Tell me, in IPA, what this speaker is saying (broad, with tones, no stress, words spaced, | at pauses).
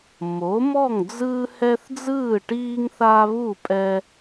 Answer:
mo˨˥mɔ˥˨ŋd͡zɯː˦hɛ˦θ d͡zɯː˥˨ʈiː˦ŋ θa˦βu˥˨pʼɛ˦